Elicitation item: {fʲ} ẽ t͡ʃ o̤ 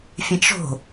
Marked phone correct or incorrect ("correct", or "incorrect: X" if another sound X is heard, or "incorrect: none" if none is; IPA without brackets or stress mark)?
correct